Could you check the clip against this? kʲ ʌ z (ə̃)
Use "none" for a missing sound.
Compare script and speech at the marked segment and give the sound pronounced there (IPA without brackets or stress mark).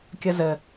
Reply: ə